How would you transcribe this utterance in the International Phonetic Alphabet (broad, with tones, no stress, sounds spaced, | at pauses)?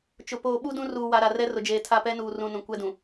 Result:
t͡ʃ ʊ˨ p oː˨ ɓ u˦ d ũ˦ r uː˨ w a˨ ɾ a˨ r ɛ˦ r ʊ˨ d͡ʒ eː˨ tʰ a˦˨ p ɛ˦ n uː˨ r ũ˨ n ũ˨ kʷ ɛ˦ d ũ˨